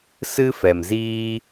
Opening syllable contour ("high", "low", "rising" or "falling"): high